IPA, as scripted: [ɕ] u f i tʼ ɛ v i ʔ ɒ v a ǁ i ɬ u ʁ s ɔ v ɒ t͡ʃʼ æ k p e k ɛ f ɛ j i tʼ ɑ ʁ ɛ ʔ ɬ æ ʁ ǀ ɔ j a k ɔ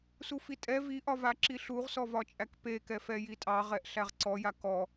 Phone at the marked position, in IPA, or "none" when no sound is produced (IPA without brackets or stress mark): s